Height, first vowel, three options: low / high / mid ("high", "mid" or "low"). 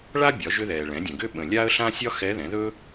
low